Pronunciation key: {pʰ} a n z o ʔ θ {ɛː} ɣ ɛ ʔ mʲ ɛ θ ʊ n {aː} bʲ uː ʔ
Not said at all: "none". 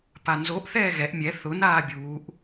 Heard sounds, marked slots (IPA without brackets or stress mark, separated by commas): p, ɛː, aː